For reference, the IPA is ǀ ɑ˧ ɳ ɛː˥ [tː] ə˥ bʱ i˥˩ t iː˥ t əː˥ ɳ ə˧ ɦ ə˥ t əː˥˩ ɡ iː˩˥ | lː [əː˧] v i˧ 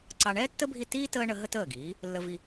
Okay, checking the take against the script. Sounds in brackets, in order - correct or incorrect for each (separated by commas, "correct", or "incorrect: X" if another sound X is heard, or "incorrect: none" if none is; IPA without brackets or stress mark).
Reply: correct, incorrect: ə˧